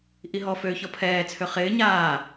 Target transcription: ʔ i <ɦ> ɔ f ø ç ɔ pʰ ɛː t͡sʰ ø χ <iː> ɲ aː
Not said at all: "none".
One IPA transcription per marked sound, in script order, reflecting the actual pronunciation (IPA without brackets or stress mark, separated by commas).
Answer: ɦ, ɪː